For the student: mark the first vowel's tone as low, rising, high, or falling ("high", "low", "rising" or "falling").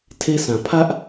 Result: high